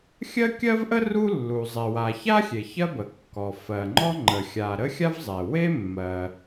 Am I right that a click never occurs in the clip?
no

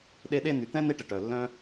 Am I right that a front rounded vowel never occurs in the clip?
no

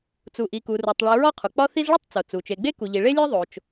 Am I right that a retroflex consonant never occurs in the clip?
no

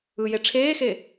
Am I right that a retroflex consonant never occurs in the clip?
no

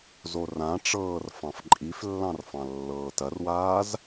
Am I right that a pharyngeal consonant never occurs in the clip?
yes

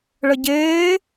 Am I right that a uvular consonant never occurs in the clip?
yes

